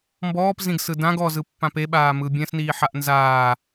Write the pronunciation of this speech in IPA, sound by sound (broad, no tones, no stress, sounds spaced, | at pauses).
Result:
m b ɔː p z ĩ ɡ s ɯ d ã ɡ ɔ z ɯ pː ã p e ɓ aː m ɯ bʲ ɛ̃ s n iː ħ a ʔ n z aː